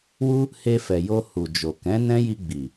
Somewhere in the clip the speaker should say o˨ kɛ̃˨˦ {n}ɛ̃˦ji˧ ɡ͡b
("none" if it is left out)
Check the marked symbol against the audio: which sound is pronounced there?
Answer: n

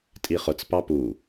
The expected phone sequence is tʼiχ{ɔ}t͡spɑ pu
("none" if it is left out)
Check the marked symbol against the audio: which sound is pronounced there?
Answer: ʊ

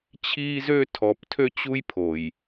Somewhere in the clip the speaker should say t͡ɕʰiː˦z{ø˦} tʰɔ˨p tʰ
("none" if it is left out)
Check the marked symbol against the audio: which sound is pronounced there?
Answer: ø˦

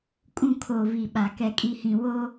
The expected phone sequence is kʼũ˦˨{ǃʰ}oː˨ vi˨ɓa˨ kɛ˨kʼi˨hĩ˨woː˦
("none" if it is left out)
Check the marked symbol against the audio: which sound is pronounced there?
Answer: kʰ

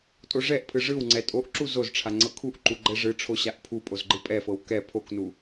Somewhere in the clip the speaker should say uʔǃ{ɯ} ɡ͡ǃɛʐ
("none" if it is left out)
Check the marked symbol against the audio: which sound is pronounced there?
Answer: u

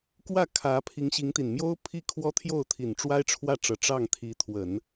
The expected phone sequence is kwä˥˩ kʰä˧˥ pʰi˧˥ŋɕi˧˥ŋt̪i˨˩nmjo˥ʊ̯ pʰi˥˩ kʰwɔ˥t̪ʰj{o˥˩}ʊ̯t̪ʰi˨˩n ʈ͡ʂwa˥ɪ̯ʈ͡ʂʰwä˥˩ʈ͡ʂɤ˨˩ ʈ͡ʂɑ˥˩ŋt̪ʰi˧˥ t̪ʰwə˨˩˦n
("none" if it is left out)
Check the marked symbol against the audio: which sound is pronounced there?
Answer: o˥˩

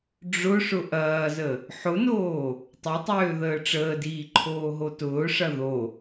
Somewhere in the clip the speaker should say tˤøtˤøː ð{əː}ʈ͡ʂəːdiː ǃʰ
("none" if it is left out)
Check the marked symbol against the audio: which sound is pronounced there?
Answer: əː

